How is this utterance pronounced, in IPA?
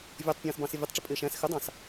vʲɔtˤpʲɑ̃ːsbɑ̃ sɪvʲʌtˤʈ͡ʂɪ pʼɪːʃæ̃s xɪdˤɑ̃s

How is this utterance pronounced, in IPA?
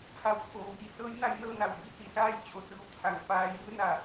ha˧wkʰoː˩ʋiː˩ sɤː˧˥jna˧j nɤː˥˨na˧˩wbi˧˥ hi˩˧saː˥˨j t͡ɕo˧˩sɯː˧˩wt̪ʰa˩ŋ paː˧jɯː˧˥na˧˩

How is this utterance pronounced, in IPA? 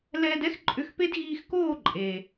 lɛː˧dɛ˦xǃʼʏ˧xpe˦d ɣiː˧xkoː˦˨ ǃʼe˨

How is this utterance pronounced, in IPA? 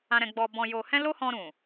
ã˧ɾɛ̃˧ ɡ͡bɔ˧bɔ̃˧jo˧hɛ̃˦ lo˦hɔ̃˧ɾũ˨

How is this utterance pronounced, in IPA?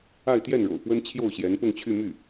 a˥˧ɪ̯t̪jɛ˥˩nɻo̰˨˩ʊ̯pwə˥n t͡ɕʰjo˥˩ʊ̯ɕjɛ˧˥npʊ˥˧ŋt͡ɕʰy˥˧ my˥˩

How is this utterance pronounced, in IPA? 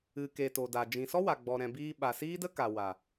ɨ˨ke˨ to˨da˨ d͡ʒĩ˨sɔ˦ wa˨ɡ͡bɔ˨ɾɛ̃˨ biː˧ɓa˨siː˦də˦ ka˨ wa˨

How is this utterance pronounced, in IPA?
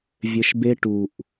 vʲɘ˧ʃbe˦ ʈu˨ʔ

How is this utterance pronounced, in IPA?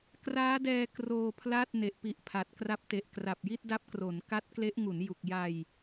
kraː˦˥dɛː˧ kroː˧pʰla˥˩t̚ ne˨˩ʔpi˨˩ʔpʰa˨˩t̚ kra˦˥p̚te˨˩ʔ kra˨˩p̚ ji˥˩t̚da˦˥p̚kro˩˦n ka˦˥t̚kle˦˥ʔ ŋu˩˦nju˨˩k̚ ja˧j

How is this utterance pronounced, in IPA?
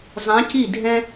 zˤĩ˧˥ci˥˨dʱɛ̃˥

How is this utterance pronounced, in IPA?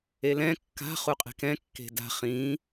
elɛ̃ kːa̤ χuqʼe̤kɛ̃ kːe̤da̤ χĩ

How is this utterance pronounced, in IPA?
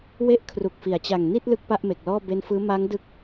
we˥˩ʔkʰru˨˩k̚fi˩˦a̯t͡ɕa˨˩ŋ ni˥˩t̚ lɯ˥˩k̚pa˥˩ʔme˨˩k̚lɔː˥˩ be˦˥nfɯː˦˥ ma˦˥ŋdɯ˦˥k̚

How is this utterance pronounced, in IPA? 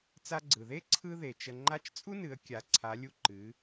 t͡sa˧ɡ͡ǀɯ˩ðe˥ ǀʰɯ˧ ðe˩t͡ʃə˧ ŋ͡ǃa˧˥t͡ʃt͡sʼu˥nɨ˩˧ə̯ kʲa˩˧ǀʰa˩˧lʲu˧ ǃɨ˩˧

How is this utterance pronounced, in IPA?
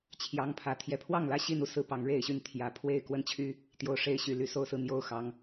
t͡ɕʰjɑ˦ŋpʰä˨˦ t̪ʰjɛ˨˩pʰwɑ˥˨ŋlä˥˨ ɕi˥˨nu˦sɹ̩˨˦ pɑ˨˦ŋɻe˥˨ɪ̯ɕy˥˨n t̪ʰjä˨˦ pʰwe˥˨ɪ̯kwə˥˨nt͡ɕʰy˦ | t̪jo˨˩ʊ̯ʂe˨˦ɪ̯ ɕy˨˩ly˥˨ so˦ʊ̯sɹ̩˨n̪jo˥˨ʊ̯xɑ˨˦ŋ

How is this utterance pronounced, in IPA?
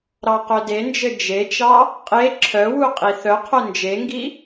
ɾɑqœdend͡ʒɘ d͡ʒet͡ʃɑ | qʼe ǁʰœwu qʼiθœqʰœ nd͡ʒeŋɡi

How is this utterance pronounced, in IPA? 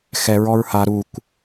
xɛ ɹɔɹha ɾukʷ

